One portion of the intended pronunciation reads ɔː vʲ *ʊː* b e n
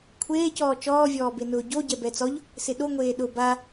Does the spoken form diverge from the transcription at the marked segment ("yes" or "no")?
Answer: yes